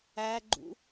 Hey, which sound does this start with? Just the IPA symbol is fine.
æ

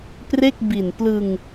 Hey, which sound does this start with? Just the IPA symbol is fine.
p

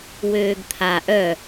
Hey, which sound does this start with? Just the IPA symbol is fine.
w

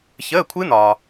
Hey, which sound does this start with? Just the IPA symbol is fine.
ç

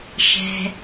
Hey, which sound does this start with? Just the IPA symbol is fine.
ʃ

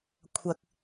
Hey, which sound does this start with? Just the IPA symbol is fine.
kʷʰ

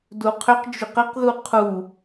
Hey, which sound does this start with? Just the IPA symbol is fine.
d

